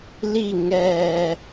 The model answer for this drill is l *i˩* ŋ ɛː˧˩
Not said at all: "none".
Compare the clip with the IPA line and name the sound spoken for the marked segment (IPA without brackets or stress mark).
i˥˨